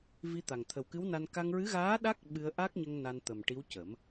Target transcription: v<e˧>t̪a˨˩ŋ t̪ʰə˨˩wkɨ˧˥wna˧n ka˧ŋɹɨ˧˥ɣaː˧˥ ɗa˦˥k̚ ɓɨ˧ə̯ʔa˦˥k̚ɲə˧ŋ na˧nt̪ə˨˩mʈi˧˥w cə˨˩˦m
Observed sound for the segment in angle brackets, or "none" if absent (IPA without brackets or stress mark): i˧